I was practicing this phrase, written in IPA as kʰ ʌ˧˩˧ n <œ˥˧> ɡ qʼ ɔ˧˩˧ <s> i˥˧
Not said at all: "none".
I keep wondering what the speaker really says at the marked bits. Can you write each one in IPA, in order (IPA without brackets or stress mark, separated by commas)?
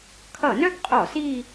œ˥˧, s